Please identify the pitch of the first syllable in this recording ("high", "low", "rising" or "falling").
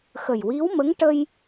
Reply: low